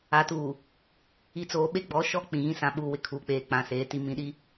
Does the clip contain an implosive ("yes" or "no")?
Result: yes